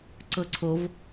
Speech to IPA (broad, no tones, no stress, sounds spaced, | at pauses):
ǀ ɤ ǀʰ o v